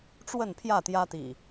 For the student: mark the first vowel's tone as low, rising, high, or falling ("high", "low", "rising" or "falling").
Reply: falling